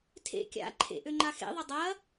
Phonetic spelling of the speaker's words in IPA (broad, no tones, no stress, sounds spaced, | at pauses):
tʰ ḛ kʲ a̰ ǃʰ ḛ ʔ ø ŋ͡ǃ a x ḛ ðˤ ɪ dˤ ɐ